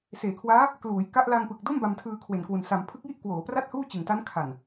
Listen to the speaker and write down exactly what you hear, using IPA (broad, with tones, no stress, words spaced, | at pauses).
seː˩˦kʰwaː˦˥ | kluː˩˦jka˦˥ʔ la˧ŋpɯ˨˩k̚ do˥˩m ba˧mtʰɯː˧kʰwe˨˩nkwu˨˩n sa˩˦mpʰɯ˦˥k̚ji˥˩ʔ kwoː˩˦pra˥˩t̚huː˥˩ t͡ɕɯ˨˩ŋta˦˥n kʰa˨˩n